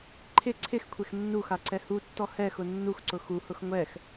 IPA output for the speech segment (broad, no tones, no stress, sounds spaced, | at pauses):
ǃʰ ɪ ǀʰ ɪ x kʷʰ e x nː u x a ǀ ɛ h u tː ɔ h ɛ x ʊ nː u x ǀ ʊ x u h ʊ x ŋʷ ɛ x